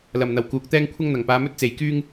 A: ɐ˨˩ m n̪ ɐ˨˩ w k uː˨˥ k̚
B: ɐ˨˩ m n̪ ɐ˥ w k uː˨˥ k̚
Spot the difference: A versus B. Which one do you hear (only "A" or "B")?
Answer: A